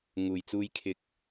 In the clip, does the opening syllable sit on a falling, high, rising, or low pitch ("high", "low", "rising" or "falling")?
low